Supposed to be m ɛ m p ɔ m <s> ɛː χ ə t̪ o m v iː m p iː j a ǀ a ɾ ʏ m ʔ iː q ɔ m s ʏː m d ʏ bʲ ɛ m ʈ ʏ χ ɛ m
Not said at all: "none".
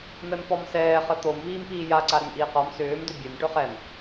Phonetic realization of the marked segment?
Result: s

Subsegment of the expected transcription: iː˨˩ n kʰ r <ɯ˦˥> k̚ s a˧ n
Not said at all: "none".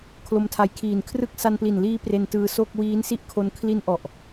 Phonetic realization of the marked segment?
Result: ɯ˥˩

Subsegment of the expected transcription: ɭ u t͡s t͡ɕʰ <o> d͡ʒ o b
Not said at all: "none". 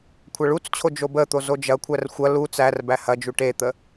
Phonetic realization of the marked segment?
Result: o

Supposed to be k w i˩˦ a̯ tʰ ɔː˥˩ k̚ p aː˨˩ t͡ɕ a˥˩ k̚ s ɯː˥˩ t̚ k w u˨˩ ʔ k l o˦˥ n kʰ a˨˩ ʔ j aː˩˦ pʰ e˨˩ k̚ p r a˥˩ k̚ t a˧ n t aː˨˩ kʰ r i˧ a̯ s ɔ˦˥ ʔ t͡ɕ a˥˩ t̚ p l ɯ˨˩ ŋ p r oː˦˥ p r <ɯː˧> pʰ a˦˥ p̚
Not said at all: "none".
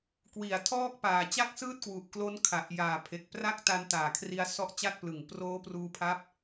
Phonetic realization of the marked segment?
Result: uː˧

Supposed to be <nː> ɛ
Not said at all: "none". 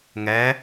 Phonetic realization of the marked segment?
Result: ŋ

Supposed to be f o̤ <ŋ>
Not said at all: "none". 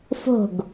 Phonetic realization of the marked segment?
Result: ɡ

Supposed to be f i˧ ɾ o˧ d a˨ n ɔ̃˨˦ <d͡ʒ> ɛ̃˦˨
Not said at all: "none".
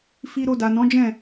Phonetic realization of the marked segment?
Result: d͡ʒ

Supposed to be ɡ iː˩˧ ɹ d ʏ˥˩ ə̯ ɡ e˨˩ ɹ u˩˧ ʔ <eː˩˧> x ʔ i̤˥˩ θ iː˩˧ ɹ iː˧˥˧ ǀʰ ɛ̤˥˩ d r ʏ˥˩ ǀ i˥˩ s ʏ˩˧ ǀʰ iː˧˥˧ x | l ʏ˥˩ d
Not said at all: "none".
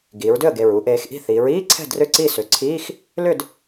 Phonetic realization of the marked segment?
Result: eː˩˧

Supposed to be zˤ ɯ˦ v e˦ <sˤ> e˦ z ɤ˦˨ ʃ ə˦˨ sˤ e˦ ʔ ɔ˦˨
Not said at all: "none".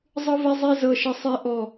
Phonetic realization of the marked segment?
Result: zˤ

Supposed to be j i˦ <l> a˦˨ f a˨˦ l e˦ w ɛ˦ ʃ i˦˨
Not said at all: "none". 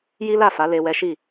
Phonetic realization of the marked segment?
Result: l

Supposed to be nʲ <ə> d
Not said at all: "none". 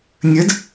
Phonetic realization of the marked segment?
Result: ə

